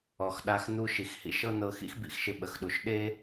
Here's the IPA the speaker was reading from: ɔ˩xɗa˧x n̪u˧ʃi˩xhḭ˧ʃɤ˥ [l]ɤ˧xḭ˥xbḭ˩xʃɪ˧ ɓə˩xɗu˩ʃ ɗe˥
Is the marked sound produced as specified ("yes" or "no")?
no